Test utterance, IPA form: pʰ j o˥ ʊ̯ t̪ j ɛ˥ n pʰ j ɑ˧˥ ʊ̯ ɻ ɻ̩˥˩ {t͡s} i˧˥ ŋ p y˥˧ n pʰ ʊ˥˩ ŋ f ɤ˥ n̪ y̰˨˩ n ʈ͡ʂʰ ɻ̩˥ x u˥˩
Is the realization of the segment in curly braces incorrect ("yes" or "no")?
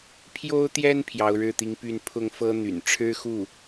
yes